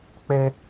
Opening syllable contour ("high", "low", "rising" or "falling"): high